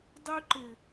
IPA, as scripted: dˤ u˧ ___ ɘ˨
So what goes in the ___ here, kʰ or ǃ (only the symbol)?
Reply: ǃ